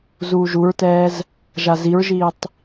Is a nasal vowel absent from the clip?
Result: yes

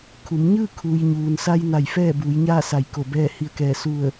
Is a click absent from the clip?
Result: yes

